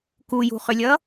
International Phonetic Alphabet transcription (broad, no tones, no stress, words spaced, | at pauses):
kujṳχʏlʲʌ